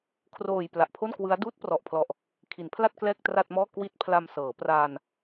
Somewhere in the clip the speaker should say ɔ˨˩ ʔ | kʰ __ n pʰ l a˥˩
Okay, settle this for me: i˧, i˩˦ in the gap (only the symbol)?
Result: i˩˦